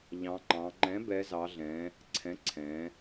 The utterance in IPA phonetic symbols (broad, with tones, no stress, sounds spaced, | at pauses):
ʎ ɑ̃˩˧ ŋ͡ǃ ɑ̃˩˧ ŋ͡ǃ ɛ̃˩˥ b ɛ˩˧ z ɑ˩˧ ɮ ɛ̃˩˧ | ǀʰ ɛ̃˩˥ ǀʰ ɛ̃˩˧